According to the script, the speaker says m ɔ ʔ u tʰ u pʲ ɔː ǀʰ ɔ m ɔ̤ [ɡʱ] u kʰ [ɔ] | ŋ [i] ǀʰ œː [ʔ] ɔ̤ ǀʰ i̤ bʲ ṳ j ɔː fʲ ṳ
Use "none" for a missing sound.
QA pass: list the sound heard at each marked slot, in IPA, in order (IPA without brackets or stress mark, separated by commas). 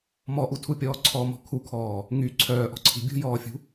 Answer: kʰ, ɔː, y, ʔ